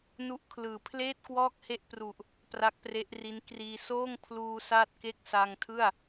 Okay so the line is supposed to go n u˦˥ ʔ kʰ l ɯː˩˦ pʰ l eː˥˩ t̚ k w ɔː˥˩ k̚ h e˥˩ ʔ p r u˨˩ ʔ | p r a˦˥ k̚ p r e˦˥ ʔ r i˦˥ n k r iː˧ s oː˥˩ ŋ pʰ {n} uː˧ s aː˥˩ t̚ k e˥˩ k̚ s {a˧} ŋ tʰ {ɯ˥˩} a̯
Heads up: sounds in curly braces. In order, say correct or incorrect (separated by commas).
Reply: incorrect, correct, correct